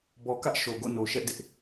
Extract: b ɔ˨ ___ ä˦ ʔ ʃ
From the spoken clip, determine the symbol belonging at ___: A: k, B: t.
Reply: A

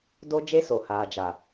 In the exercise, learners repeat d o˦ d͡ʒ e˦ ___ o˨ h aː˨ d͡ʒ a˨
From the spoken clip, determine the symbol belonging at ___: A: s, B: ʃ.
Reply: A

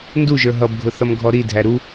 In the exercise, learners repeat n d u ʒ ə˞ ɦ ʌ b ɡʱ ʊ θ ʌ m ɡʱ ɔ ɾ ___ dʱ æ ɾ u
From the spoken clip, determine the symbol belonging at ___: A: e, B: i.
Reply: B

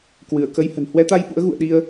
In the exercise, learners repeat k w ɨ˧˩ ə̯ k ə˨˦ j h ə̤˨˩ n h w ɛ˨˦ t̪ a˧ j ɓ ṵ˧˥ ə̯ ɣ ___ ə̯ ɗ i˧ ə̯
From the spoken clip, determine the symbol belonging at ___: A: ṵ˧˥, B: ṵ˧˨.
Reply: B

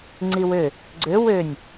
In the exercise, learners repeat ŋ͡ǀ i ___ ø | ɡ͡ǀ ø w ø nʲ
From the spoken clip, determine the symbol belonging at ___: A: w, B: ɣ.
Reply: A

